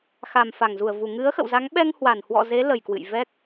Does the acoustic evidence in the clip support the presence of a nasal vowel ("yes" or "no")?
no